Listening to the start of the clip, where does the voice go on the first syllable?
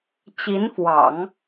rising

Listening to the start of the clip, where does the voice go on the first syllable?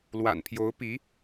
low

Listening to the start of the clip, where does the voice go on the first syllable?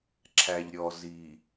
low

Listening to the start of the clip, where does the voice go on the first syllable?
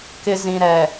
low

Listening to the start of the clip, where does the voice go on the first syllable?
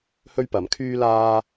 high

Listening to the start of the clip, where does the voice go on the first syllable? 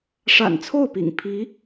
low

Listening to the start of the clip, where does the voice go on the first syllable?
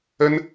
high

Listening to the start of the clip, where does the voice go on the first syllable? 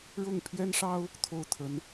falling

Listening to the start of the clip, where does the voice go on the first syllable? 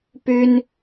high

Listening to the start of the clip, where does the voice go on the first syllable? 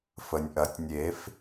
low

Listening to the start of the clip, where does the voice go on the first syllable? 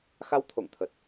rising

